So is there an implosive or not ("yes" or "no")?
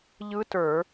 no